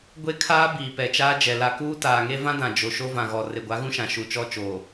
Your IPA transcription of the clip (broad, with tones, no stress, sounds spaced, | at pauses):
ɡʷ e˦ kʰ aː˦ b iː˨ p ɛ˨ t͡ʃ aː˦ d͡ʒ ɛ˨ l a˨ k uː˦ t aː˨ ŋ e˦ v ã˦ d ã˨ d͡ʒ o˨ ʃ o˦ v ã˨ ɣ ɔ˨ r e˨ ɡʷ a˨˦ ɣ ũ˦ ʃ ã˨ ʃ u˨ t͡ʃ ɔ˦ t͡ʃ oː˨